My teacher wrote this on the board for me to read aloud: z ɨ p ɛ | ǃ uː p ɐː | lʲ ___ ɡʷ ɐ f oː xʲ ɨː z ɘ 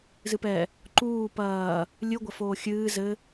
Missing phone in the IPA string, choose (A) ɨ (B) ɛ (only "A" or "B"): A